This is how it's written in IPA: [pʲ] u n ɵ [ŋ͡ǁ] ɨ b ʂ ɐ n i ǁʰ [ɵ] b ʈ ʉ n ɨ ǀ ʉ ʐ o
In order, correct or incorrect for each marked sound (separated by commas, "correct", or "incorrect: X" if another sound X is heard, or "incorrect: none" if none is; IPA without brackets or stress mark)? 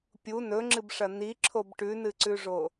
correct, correct, incorrect: o